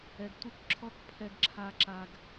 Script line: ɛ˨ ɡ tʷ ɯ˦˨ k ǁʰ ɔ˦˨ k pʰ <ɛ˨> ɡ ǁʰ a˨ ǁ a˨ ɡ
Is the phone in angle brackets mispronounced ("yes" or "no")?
no